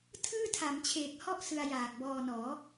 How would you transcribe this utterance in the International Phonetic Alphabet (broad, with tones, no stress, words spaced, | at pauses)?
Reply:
tʰɯː˥˩tʰa˩˦mt͡ɕʰeː˨˩k̚hɔ˥˩ʔ sɯ˧a̯jaː˨˩k̚bɔː˧nɔː˩˦